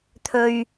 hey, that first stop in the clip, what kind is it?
aspirated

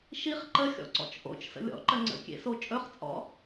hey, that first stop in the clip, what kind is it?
click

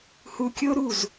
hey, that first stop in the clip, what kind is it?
plain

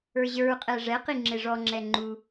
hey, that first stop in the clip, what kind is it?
ejective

